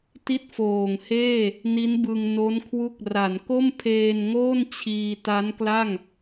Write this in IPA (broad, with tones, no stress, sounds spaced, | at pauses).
t i˥˩ t̚ f oː˨˩ ŋ h eː˥˩ | n i˦˥ n b ɯ˧ ŋ n o˦˥ n kʰ w u˦˥ k̚ r a˩˦ n k o˥˩ m pʰ eː˧ n ŋ oː˥˩ n t͡ɕʰ iː˧ t a˦˥ n k l a˥˩ ŋ